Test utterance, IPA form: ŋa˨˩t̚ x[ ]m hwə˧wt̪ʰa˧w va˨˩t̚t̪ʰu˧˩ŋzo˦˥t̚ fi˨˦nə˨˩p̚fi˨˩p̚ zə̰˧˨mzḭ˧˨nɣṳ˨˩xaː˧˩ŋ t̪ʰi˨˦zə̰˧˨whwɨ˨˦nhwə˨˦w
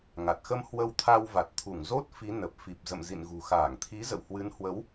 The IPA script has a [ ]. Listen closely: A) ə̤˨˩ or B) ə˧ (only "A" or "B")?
B